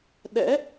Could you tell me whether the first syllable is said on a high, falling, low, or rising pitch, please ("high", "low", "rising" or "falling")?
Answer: rising